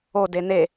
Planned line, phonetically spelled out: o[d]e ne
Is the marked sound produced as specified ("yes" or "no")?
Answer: yes